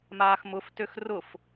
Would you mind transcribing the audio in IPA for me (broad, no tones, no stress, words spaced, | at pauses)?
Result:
maːxmʊftøx rʊf